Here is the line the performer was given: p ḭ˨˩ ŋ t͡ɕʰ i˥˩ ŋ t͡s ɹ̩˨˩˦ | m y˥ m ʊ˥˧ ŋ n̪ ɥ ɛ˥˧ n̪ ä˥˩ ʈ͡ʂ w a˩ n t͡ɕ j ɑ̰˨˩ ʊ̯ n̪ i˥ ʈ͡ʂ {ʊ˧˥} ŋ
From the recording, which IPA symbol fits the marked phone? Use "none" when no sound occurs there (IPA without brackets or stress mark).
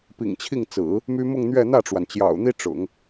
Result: ʊ̰˨˩˦